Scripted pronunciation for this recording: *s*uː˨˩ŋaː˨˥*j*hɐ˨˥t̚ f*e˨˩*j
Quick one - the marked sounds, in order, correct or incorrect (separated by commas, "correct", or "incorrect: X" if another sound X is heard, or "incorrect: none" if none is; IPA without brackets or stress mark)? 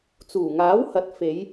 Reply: incorrect: t͡s, incorrect: w, incorrect: e˨˧